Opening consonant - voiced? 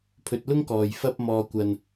no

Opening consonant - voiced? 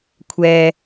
no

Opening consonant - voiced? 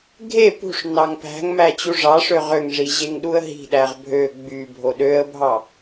yes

